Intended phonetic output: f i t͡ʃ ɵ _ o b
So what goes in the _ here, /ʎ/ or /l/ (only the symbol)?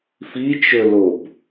l